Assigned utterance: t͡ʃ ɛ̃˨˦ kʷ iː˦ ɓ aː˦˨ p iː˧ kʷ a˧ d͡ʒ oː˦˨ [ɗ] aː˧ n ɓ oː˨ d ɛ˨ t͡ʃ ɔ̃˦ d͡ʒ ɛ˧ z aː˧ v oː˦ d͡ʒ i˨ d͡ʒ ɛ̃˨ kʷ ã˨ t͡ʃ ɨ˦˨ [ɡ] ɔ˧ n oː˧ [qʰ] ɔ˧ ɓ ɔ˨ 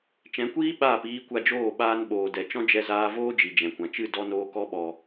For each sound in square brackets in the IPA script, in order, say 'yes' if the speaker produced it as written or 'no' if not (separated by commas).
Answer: no, no, no